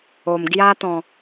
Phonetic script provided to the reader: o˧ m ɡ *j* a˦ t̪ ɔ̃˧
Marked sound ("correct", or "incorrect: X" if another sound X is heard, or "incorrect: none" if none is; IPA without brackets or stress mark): correct